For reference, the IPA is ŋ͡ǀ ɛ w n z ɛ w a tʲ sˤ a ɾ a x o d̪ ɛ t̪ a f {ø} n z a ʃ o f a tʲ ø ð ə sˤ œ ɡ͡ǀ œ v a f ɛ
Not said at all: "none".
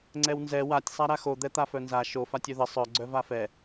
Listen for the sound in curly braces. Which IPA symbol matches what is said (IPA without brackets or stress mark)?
œ